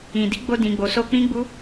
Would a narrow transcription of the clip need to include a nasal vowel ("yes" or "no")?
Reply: yes